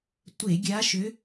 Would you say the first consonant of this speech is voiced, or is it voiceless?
voiceless